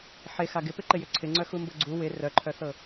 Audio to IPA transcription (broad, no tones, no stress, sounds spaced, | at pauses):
ħ e x a ɡ ɪ p ɪ ǃ ɪ j ʏ ǀʰ ɪ ŋ͡ǀ œ x u m b ɤ ɡ͡ǀ u w ɪ r œ ǃʰ œ θ ɤ